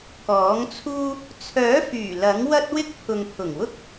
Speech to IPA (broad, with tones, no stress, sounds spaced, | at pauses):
k ɔː˨˥ ŋ t͡sʰ uː˥ | t͡sʰ œː˨˥ f yː˨˩ l ɐ˨˥ ŋ w ɐ˥ t̚ w ɪ˥ k̚ pʰ ʊ˨ ŋ pʰ ʊ˨˩ ŋ w ʊ˥ k̚